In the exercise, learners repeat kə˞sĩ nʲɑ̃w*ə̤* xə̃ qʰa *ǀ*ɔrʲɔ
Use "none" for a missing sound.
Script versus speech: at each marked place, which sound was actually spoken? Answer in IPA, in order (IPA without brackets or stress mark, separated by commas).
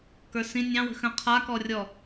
ə̤, k